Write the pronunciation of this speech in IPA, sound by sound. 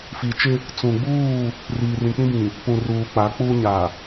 f i˨ t͡ʃ ɪ˦ | t͡s ũ˨ ɡ͡b uː˦˨ | r iː˨ r ĩ˨ k͡p ĩ˦ b ĩ˨ | p ũ˨ r uː˨ k͡p a˨˦ k͡p uː˦ ɲ a˨

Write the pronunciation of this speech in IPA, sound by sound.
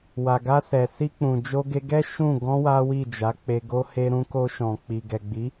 w a˨ ɡ a˧ s ɛ˨ s i˧ k͡p ũ˨ d͡ʒ o˧ ɡ e˧ ɡ ɛ˦ ʃ ũ˦˨ ɡ ɔ̃˧ w a˦ w i˦˨ d͡ʒ a˨˦ k͡p e˧ ɡ o˦ h e˧ ɾ ũ˧ k o˧ ʃ ɔ̃˨ k͡p i˨ ɡ ɛ˨ ɡ͡b i˨˦

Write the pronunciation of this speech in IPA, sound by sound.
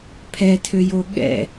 pʰ ɛ tʰ ø j o ɠ ɛ̰

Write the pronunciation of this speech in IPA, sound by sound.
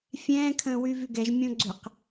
fʲ ɛ̃ː kʰ ə̃ː w y v y ɡ ɛ ʒ mʲ õ ɡ͡ǀ ʏ q

